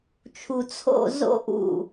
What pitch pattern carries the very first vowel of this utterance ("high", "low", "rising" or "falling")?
low